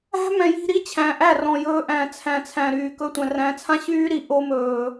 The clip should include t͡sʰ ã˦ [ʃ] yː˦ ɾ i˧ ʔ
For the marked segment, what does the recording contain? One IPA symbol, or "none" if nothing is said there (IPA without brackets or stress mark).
ɕ